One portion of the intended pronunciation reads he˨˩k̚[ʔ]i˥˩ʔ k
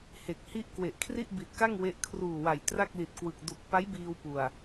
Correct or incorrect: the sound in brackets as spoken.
incorrect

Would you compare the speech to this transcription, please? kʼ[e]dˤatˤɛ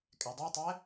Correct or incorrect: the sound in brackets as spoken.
incorrect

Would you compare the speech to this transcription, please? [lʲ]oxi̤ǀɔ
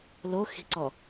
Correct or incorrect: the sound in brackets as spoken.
incorrect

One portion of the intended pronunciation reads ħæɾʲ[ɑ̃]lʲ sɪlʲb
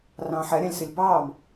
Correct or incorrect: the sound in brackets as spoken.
correct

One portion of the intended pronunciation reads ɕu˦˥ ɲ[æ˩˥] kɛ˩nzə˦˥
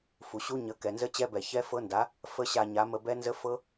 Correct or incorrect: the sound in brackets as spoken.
incorrect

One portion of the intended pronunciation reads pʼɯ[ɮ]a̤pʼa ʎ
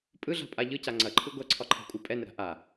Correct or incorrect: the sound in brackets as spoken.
correct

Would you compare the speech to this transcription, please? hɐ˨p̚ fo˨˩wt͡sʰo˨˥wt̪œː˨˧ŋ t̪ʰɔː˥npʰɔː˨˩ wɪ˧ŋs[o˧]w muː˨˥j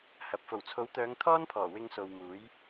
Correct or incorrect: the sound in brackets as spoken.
incorrect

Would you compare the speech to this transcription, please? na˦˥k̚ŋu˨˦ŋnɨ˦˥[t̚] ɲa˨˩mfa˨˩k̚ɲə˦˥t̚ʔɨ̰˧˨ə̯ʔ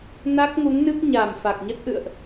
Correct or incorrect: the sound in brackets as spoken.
incorrect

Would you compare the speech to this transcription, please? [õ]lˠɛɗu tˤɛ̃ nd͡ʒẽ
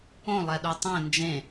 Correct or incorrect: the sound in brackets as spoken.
correct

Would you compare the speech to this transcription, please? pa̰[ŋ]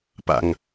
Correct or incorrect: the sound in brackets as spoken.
correct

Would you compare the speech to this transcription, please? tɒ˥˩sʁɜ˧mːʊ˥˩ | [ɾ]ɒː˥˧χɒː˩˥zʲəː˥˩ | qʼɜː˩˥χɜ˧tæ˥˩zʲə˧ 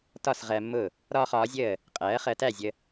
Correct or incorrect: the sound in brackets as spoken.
correct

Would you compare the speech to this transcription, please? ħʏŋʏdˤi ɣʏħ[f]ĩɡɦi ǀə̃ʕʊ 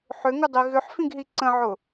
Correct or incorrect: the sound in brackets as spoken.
correct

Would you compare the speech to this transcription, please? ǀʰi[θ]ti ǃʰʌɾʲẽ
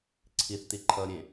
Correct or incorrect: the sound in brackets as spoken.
correct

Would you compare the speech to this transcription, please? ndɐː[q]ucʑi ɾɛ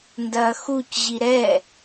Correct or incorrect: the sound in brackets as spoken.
incorrect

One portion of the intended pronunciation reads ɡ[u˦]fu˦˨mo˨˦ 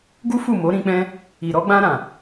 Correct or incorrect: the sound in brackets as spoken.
correct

